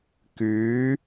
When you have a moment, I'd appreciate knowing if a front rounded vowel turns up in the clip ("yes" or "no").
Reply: yes